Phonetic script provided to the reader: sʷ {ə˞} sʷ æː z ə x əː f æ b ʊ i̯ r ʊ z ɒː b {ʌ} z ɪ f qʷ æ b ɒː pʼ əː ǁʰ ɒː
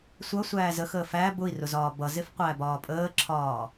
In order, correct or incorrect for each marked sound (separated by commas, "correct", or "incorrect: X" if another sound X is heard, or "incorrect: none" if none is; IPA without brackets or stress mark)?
incorrect: ʌ, correct